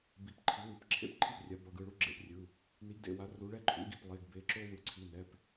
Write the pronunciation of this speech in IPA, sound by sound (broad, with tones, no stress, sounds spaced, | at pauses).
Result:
b i˩˧˩ p ǃʰ i˩˥ w ɯ˩˥ p ǁʰ ḛ˥ p ǃʰ i˥ p rʲ a˩˥ b ʌ˩˧˩ ɡ ɯ˩˧˩ ɭ u˥ ɡ͡ǁ ḛ˩˥ p rʲ ɯ˩˧˩ | n i˩˥ ɡ d ḛ˩˧˩ w a˩˥ r u˩˥ ɭ ɛ˥ ǃʰ ṵ˩˥ ɡ i˩˧˩ p lˠ e˩˧˩ ɡ b e˩˧˩ ǁ o˥ w ɯ˩˧˩ ǀʰ i˩˧˩ n ɛ˩˧˩ p